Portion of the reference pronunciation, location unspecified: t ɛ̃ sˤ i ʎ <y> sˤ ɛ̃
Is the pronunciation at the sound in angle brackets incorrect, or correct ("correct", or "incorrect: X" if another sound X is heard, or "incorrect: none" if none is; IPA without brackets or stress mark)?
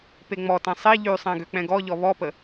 correct